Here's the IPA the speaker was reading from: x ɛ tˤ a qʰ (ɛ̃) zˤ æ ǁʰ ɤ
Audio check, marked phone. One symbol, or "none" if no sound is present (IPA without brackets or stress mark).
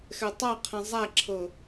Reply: ɛ̃